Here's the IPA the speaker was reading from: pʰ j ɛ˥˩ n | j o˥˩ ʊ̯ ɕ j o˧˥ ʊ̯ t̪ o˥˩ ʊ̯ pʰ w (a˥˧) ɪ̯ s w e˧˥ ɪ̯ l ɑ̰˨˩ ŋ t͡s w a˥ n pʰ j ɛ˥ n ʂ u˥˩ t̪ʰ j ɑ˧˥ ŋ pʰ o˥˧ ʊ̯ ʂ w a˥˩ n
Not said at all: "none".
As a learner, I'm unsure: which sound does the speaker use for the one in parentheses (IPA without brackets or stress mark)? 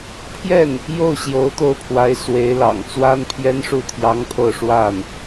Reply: a˧˥